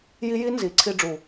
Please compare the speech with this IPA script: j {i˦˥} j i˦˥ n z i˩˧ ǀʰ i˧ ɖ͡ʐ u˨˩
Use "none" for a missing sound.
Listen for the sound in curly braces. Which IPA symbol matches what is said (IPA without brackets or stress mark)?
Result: i˦˥